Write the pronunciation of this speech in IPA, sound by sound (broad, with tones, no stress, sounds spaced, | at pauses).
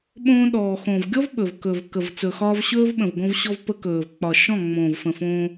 ɓ õː˧ ɗ ɔː˨ x õ˨ v ɡʲ ɔ˦ v ɓ ɵ˨ v k ɵ˨ v k ə˨ v t͡s ɵ˨ x ɒː˧ v ɕ ɵː˦ v ɓ ə̃˨ v ɡ õ˧ v ɕ ɔ˧ v p ə˧ k ɵː˨ v k͡p ɒ˨ ʃ ɔ̃˦˨ ŋ͡m õː˨ v f ə̃˨ f õː˧